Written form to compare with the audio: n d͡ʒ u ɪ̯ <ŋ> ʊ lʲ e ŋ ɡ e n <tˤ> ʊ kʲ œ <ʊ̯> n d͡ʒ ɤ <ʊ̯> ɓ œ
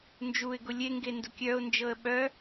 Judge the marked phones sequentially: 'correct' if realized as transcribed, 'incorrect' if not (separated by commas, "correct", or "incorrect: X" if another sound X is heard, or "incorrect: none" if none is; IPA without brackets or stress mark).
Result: incorrect: ɡ, incorrect: d, correct, incorrect: ə̯